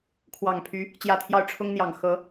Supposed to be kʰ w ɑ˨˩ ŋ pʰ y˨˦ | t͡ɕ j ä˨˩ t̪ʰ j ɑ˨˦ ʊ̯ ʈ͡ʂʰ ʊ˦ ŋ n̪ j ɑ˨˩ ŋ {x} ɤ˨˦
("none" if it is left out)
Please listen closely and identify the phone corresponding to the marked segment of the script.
x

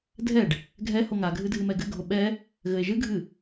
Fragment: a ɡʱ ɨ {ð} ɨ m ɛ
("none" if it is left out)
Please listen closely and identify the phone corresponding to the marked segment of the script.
dʱ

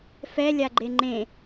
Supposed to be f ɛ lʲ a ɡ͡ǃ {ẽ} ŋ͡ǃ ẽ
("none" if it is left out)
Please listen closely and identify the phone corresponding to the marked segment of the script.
e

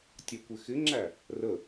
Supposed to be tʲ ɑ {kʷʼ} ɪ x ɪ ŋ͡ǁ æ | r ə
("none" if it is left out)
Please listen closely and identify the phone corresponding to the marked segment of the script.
kʷ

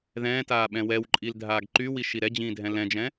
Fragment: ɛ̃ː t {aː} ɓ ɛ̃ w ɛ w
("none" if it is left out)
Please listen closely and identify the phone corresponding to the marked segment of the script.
aː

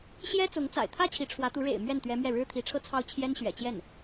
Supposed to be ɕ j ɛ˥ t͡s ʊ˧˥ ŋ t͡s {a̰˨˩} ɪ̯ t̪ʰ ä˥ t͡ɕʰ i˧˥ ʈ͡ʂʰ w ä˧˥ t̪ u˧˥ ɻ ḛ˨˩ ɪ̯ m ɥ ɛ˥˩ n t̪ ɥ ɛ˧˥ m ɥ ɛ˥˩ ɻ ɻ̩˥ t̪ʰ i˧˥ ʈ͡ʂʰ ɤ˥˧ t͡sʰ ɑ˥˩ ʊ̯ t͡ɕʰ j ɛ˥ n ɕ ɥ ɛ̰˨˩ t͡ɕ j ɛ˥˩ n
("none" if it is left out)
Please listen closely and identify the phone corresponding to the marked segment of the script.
a̰˨˩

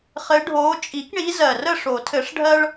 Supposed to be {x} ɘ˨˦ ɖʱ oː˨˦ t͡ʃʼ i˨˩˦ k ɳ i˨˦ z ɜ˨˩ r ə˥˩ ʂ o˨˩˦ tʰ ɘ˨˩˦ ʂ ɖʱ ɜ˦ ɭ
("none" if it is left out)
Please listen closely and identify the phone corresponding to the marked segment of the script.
χ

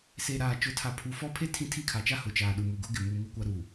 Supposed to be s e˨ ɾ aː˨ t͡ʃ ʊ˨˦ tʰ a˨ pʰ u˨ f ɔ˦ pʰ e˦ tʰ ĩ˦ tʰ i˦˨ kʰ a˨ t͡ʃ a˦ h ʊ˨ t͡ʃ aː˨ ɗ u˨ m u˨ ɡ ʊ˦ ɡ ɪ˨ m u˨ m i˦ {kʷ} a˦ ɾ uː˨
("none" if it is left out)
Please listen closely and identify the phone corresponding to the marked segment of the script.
kʷ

